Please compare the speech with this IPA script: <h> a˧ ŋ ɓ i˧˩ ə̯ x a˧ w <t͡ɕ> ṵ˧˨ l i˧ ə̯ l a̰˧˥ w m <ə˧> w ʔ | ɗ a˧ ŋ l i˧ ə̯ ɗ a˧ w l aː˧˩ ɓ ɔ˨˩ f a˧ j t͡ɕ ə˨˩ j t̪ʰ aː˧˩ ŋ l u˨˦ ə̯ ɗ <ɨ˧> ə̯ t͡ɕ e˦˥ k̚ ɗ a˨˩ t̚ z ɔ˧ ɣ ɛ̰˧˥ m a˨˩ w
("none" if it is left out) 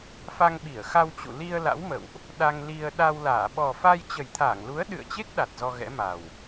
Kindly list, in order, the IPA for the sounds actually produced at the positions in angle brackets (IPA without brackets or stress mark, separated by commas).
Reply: f, t͡ɕ, ə̰˧˨, ɨ̰˧˨